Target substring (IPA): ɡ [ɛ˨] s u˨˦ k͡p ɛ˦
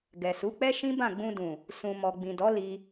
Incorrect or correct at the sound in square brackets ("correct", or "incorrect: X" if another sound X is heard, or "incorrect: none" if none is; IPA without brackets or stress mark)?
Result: correct